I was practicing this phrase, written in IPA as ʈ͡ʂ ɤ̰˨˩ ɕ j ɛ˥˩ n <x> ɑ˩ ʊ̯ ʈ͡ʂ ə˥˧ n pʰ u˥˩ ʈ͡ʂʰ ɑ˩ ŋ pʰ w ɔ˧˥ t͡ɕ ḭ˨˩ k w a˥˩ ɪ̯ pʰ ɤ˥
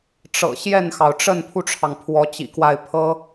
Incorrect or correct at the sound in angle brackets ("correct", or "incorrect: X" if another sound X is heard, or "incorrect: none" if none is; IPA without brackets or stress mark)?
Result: correct